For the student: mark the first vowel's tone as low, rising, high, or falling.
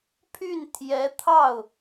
falling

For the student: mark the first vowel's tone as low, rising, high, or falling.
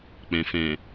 low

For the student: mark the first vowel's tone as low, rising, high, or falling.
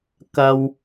high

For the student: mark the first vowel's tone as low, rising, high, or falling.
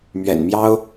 low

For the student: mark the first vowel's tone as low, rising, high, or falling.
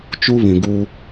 high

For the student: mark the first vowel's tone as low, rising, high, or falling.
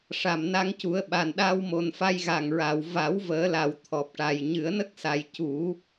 low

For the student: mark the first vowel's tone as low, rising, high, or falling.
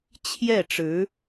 falling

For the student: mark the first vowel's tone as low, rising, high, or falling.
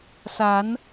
rising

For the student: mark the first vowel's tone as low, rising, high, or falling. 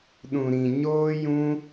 low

